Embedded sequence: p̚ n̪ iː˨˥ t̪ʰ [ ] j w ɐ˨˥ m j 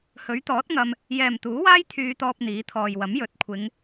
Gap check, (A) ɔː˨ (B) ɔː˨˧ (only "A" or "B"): A